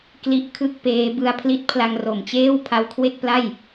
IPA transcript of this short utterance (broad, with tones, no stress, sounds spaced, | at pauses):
k l i˦˥ ʔ kʰ ɯ˥˩ k̚ p eː˦˥ b ɯ˧ a̯ pʰ l i˥˩ t̚ pʰ l a˧ ŋ r o˨˩ m t͡ɕ eː˥˩ w pʰ a˦˥ w kʰ w e˥˩ k̚ p l a˥˩ j